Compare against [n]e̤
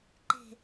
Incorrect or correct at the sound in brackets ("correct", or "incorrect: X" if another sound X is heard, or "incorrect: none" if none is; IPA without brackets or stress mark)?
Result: incorrect: ǃ